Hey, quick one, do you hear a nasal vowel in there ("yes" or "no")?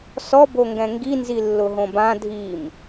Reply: yes